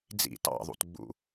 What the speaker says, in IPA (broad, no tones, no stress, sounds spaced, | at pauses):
d͡z ḭ t ɑ̰ ðˤ ṵ t ɡ͡b ṵ